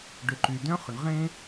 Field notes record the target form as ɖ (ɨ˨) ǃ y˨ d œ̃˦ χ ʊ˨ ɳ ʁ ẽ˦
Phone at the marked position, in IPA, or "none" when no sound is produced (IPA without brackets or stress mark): ʏ˨